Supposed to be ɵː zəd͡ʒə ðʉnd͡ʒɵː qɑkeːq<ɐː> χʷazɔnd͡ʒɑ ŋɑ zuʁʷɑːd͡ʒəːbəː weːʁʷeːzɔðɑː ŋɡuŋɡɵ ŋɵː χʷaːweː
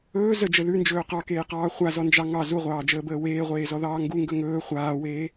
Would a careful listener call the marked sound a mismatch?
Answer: yes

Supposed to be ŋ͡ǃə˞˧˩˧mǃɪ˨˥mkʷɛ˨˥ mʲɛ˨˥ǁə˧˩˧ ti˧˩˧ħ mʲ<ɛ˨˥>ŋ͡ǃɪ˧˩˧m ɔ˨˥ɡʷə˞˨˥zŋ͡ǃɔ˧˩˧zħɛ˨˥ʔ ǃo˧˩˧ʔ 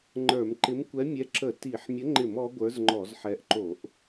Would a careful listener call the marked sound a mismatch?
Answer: yes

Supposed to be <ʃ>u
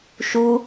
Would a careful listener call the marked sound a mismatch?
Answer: no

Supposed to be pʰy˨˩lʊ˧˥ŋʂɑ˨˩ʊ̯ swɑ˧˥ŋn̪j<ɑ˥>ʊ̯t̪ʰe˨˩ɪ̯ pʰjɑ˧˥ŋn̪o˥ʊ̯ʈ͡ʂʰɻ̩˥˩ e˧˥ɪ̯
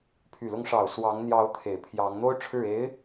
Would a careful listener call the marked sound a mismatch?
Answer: yes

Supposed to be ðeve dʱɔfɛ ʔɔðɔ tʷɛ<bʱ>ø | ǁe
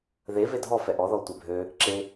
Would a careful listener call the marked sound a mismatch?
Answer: no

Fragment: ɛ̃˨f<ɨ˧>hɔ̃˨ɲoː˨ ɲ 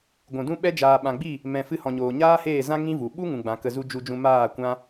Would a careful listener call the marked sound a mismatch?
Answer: no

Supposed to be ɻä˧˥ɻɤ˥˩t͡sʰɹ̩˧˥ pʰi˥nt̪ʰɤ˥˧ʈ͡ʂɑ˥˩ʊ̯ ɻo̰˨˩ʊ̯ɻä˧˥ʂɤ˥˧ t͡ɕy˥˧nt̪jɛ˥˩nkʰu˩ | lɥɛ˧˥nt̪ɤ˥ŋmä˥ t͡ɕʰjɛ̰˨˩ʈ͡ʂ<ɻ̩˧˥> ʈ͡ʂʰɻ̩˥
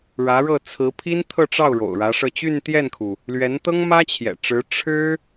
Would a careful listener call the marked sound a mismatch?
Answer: no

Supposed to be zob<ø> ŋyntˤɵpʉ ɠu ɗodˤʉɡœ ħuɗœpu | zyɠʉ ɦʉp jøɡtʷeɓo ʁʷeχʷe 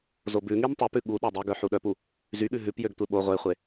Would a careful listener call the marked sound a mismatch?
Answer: yes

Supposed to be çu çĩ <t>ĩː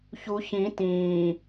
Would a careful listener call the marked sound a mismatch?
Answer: no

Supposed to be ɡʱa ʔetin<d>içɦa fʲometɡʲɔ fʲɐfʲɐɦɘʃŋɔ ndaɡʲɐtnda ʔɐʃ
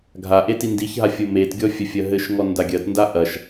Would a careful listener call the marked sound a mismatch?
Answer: no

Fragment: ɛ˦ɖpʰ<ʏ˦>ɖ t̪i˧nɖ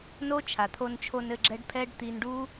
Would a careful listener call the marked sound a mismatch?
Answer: yes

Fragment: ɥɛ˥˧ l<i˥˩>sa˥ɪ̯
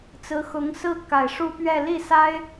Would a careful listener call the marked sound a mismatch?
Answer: no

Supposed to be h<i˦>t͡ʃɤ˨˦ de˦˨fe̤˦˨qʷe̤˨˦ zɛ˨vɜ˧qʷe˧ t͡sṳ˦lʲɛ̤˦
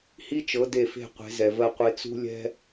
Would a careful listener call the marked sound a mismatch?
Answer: no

